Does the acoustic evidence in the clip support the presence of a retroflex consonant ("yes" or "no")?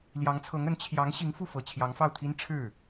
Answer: yes